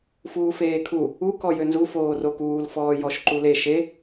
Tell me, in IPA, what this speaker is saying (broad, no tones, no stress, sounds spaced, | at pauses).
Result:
f uː f eː kʰ u | u k ɔ j ø n z u f oː r o k uː l f ɔː j ɔ ʃ ǃ u l e ʃ e